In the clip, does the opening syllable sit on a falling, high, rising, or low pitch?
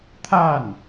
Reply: falling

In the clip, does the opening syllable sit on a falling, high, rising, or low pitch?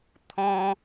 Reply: high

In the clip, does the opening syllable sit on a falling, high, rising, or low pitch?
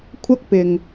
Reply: high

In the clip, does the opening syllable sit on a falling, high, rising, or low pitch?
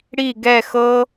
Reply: falling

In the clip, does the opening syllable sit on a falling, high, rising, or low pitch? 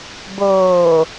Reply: low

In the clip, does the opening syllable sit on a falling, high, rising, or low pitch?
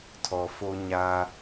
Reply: low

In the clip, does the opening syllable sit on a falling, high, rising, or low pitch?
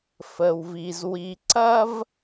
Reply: low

